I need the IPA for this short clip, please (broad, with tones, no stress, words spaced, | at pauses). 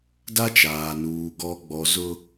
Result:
da˦t͡ʃaː˨nuː˨ ɡɔ˨ ɡ͡bɔ˨ zʊ˦